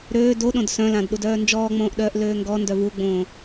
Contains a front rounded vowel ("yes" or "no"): yes